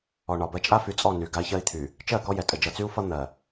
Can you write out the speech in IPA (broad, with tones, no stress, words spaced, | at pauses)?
ɔ˨ɳɒ˨bɜ˦ t͡ʃʼa˦fy˨t͡sʼɔ˦˨ny˨ ɡa˦i̯çɜ˦i̯t̪ʰy˨ | t͡ʃɜ˦˨kɔ˦jɛ˨ tʼə˨d͡ʒʌ˨t͡sy˦u̯fʌ˦ n̪ɜ˨